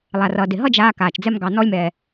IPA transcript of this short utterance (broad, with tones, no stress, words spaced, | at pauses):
lˠa˩rʌ˩dɪ˩ ɦʌ˥d͡ʒaː˧ kaː˩t͡ʃd͡zɛ˧m ɡɑ˩nɔ˧lʲmɛː˩